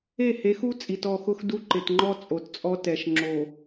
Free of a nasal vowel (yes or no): yes